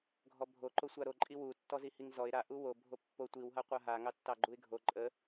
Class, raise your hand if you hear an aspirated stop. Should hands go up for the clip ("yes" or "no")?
no